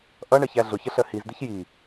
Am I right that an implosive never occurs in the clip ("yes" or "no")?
yes